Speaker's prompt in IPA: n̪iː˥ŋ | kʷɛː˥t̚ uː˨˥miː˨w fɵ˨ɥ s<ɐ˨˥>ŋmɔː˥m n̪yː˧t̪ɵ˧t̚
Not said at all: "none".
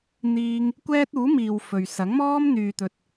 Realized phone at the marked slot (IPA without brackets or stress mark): ɐ˨˥